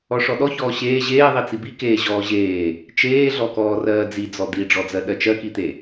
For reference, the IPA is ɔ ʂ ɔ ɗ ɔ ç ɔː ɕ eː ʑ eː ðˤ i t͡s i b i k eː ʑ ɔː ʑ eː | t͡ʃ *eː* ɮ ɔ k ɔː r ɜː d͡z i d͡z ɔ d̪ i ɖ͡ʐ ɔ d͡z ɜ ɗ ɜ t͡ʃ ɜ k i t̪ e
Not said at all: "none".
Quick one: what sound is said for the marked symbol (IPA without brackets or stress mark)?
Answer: eː